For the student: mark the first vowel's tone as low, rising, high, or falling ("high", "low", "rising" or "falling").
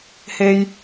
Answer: high